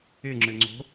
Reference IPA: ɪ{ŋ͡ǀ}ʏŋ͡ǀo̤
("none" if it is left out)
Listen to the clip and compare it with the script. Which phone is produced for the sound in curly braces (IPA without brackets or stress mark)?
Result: ŋ͡ǁ